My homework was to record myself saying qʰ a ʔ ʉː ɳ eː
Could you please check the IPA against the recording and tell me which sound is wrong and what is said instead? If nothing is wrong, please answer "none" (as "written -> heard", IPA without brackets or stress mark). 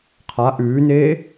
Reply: ɳ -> n